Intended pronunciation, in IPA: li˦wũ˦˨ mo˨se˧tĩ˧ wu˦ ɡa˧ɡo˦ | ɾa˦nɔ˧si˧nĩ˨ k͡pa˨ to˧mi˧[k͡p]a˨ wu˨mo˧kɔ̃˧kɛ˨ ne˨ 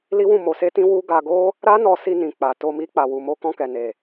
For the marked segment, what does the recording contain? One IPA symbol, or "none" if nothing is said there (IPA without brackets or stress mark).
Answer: k͡p